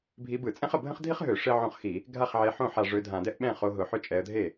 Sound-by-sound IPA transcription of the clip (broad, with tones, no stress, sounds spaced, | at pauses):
bʱ i˨˦ b ɯ˧˩˧ t͡sʼ ɛ̃˥ χ ə˧˩ bʱ ə̃˥ χ dʱ i˥ χ ɦ ø˧˩˧ ʂ e˥ ʕ õ˥˩ χ x i˧˩˧ | ɡʱ a˥˩ χ ʕ e˨˦ ħ õ˥˩ ħ a˧˩ ʐ ø˨˦ dʱ ã˧˩˧ d ɛ˥ ʔ ɓ ɛ̃˥˩ χ o˨˦ ɦ ʊ˧˩ ħ ʏ˥˩ t͡ʃʼ ɛ˨˦ ə̯ dʱ e˥˩